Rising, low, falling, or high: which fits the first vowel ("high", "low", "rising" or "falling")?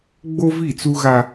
high